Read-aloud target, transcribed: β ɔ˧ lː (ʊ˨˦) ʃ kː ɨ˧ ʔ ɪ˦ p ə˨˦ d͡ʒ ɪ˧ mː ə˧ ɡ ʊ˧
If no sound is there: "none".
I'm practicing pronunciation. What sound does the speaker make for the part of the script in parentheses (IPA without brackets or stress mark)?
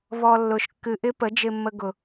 ʊ˨˦